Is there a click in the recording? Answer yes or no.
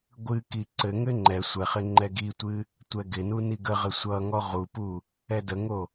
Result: yes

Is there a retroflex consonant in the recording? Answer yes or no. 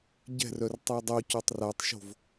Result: no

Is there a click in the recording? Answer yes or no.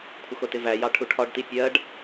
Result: no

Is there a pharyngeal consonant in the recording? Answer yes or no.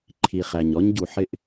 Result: yes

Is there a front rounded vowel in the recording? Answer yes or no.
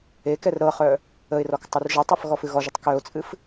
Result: yes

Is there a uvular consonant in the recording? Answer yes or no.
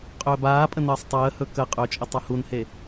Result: yes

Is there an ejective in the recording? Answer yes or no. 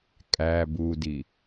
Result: yes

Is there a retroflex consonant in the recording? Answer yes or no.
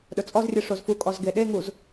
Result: yes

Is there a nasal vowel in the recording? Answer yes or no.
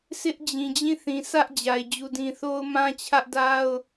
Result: yes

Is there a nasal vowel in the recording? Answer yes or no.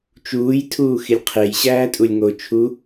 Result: no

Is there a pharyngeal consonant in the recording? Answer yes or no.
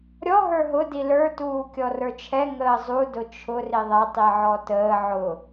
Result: yes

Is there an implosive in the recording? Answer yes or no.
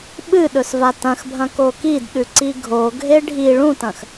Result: yes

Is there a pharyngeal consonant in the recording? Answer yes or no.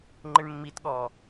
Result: no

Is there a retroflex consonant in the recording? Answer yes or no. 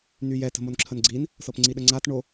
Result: yes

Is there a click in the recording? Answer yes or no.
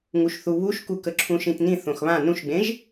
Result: yes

